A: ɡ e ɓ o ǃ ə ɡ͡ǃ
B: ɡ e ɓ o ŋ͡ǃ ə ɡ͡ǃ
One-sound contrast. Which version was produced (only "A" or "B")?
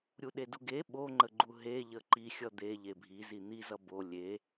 B